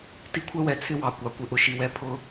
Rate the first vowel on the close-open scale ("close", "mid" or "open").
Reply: close